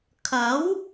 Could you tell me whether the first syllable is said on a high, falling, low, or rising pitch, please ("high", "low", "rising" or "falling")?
rising